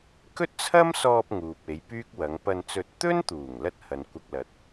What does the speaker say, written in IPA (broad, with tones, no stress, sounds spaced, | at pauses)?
k ɵ˥ t̚ t͡sʰ ɐ˥ m s ɔː˧ p̚ ŋ uː˨ p̚ e˨˧ j p yː˥ k̚ w ɐ˨˧ ŋ p ɐ˧ n t͡s ɵ˧ t̚ t̪ ɵ˥ n t̪ uː˨˩ ŋ l ɐ˥ t̚ h ɐ˨ n kʷ ɐ˧ k̚ l ɐ˨˥ t̚